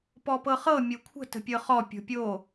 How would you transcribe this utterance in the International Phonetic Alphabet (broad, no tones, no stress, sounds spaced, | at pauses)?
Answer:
p ɔ p ɤ χ ɤ mʲ o kʷʰ ə̤ t ə̤ pʲ ɤ χ ɔ pʲ o̤ pʲ o